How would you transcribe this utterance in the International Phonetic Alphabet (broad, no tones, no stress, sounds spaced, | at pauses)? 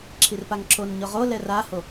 ǁʰ i r p a ŋ ǁʰ o n ɲ ʊ ʁ o l ɛ r a h o